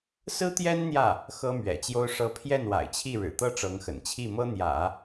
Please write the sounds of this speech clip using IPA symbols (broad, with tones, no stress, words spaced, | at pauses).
sɹ̩˥t̪jɛ˥n n̪jä˥˩ | xɤ˥mɥɛ̰˨˩t͡ɕjo˥ʊ̯ʂɤ˥ pʰjɛ˥˩nwa̰˨˩ɪ̯t͡ɕʰi˥˩ ɻɻ̩˨˩t̪ɤ˥˩ʈ͡ʂɤ˧˥ŋxə̰˨˩n t͡ɕʰi˥˩mɤ˥n̪jä̰˨˩˦